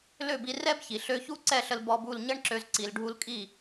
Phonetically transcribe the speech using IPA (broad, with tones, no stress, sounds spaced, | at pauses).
l ø˦˨ b i˧ r ɛ˦ b ç i˨ ɬ ø˧ ç u˦ ǀ ɛ˦˨ ɬ ə˧ l b ɔ˧ b u˦˨ l ɲ ə˦ ɳ ǁ ø˧ z ǀ i˨ l ɖʱ u˧ l kʼ i˦˨